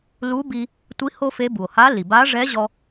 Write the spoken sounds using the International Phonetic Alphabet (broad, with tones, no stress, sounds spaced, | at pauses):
l u˧˥ b i˧ | tʷ i˧˥ h o˥ f e˧˥ b u˩ o̯ h a˧˥ l i˩ b a˧˥ ʐ ɛ˧˥ ʑ ɔ˧